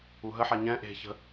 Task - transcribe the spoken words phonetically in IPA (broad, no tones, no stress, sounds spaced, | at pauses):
u ɦ ə ħ a ɲ ɛ̃ ʔ e̤ ç ə̤